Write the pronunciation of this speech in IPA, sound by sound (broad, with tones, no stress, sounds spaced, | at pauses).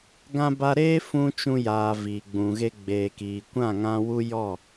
ɡ ã˧ b a˧ ɾ eː˦ f ũ˦ t͡ʃ ũ˧ j aː˨ v iː˨ ɡ͡b ũ˨ ɣ e˧ ɡ͡b eː˨ k iː˨ kʷ ã˦˨ ŋ ã˧ w u˦ j ɔ˦˨